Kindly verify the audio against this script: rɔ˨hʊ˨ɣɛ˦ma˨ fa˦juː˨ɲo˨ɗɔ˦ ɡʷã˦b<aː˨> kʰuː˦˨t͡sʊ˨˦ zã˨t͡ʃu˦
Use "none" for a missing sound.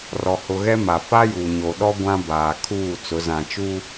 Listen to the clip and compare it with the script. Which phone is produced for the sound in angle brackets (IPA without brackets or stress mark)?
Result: aː˨